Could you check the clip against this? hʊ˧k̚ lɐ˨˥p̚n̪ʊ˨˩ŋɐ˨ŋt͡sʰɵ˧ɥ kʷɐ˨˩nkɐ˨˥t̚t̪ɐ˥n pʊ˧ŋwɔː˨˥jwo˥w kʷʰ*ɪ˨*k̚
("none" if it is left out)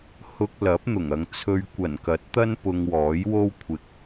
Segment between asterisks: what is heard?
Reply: ɪ˧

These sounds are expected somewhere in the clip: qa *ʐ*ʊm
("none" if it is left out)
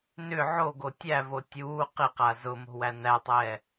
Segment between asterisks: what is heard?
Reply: z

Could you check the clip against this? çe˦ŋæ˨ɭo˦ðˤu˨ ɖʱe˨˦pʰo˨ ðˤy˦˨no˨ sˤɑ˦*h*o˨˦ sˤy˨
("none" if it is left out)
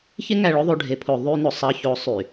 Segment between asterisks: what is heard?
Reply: ç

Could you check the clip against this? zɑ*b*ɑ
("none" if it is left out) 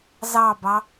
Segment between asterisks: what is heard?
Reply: b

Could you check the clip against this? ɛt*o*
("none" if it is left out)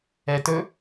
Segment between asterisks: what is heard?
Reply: ɵ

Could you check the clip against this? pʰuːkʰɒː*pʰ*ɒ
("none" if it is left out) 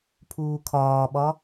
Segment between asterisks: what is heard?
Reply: ɓ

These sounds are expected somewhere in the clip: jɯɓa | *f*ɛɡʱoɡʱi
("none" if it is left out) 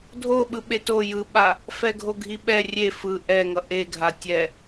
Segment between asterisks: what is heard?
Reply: f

